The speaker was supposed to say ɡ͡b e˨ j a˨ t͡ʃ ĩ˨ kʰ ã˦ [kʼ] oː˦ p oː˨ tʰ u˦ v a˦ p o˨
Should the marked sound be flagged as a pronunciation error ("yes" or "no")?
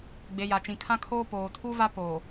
yes